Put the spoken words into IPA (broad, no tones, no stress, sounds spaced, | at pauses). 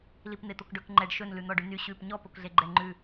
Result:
l i p n̪ e t̪ o k ɖ ɵ k ŋ͡ǃ ɛ ɖ ʃ ɵ n l ʉ n̪ ɔ ɖ ʉ n y ɕ ʉ p ɲ ɔ p o k ɮ e ɡ͡ǃ ɛ ŋ͡ǃ ʉ